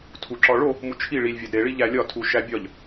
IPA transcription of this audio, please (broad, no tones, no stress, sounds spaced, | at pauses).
tʰ u ǁ ɒ ɭ o | m u t͡ʃʰ i ɭ i lʲ vʲ æ d ɾ e ɭ i ʎ æ lʲ ɒ tʰ u ʃ æ bʲ ɒ ʎ